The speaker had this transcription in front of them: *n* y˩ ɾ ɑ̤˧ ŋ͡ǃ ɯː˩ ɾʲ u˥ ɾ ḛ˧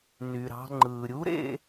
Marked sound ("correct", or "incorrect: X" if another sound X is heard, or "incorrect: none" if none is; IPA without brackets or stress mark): correct